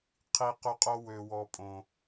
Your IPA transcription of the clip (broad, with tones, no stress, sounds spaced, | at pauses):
qʰ i˨ q ø˦ qʼ o˦ w ø˨ w ɔ˨˦ pʼ õ˨